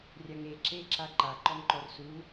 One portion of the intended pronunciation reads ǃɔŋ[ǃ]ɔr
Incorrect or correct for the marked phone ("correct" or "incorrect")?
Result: correct